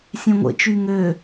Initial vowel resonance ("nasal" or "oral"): nasal